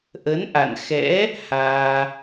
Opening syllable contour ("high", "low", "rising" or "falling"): rising